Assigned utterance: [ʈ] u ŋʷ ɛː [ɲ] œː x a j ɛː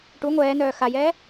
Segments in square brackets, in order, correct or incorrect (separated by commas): correct, incorrect